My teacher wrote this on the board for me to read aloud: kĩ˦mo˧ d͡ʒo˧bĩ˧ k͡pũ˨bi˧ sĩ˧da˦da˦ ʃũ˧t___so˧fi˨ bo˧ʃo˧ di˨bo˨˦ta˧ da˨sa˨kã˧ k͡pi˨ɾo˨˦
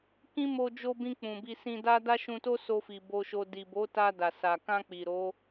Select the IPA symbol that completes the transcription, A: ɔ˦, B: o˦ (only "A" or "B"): B